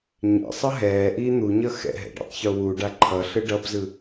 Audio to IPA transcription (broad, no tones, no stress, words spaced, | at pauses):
ɲɛ̰sˤʌ ɦɛːʔiː n̪uɲʌ xɛ̰ɦɛ̰ ɖḛtˤçowuɖa ǃʰʌɬɯ ɖʌbzɯ